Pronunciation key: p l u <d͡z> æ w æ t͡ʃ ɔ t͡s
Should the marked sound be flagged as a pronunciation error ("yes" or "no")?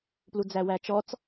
no